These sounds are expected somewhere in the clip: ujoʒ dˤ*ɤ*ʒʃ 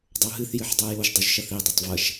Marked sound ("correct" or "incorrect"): incorrect